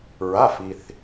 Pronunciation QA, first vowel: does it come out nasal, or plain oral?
oral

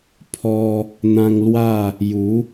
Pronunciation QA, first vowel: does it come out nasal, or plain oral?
oral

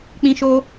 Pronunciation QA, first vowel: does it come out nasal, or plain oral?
nasal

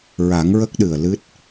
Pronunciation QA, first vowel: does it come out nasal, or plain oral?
oral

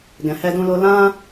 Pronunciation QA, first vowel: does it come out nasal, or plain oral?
nasal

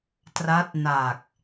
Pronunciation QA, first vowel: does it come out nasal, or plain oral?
oral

